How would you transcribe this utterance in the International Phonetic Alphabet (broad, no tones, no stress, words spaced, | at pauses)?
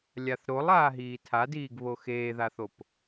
lʲaθɾolˠ aːɦiːtʰadiːɡ βoxeːðaθop